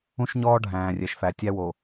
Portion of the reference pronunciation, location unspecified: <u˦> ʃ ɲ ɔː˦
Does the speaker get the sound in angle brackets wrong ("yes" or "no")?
yes